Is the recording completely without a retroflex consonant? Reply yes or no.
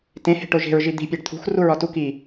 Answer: no